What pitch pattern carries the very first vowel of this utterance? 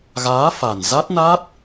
rising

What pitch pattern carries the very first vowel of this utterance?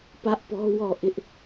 high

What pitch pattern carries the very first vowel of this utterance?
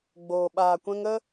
low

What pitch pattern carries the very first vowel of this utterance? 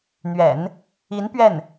low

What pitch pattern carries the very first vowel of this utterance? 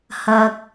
low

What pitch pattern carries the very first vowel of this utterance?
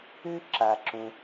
high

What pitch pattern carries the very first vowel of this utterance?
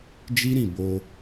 high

